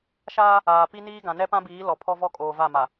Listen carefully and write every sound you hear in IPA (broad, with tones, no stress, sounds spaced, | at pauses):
ʃ aː˦ | aː˨ p i˦ n iː˦ ɡ ã˨ n ɛ˦ p ã˦ b iː˨˦ l ɔ˨ pʰ ɔ˦ v ɔ˦ kʼ oː˨ v a˦˨ m a˨